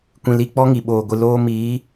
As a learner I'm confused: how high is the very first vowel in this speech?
high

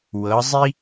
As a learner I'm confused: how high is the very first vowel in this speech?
mid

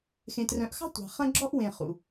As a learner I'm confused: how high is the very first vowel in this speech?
mid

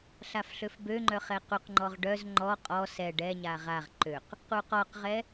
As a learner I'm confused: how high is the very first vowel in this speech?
low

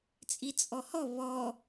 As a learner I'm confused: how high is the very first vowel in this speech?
high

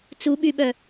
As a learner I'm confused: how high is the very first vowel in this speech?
high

